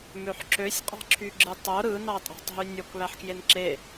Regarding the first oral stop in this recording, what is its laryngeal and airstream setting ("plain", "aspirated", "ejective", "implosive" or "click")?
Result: click